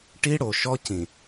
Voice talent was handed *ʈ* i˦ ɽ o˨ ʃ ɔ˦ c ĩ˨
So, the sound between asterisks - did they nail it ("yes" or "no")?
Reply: yes